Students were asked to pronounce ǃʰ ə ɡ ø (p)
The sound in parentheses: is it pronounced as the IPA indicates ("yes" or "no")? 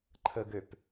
yes